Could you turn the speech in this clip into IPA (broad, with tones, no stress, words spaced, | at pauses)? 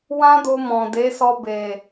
wã˦do˧mɔ̃˨ de˨˦sɔ˧be˨